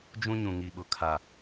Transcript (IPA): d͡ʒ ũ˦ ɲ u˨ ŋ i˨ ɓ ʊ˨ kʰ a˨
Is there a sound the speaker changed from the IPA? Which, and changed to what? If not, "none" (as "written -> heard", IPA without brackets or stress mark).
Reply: u˨ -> ũ˨